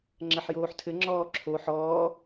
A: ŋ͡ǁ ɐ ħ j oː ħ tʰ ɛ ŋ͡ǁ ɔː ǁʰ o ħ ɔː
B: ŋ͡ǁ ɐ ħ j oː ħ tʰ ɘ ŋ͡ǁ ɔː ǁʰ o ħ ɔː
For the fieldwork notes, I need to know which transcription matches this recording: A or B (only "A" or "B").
B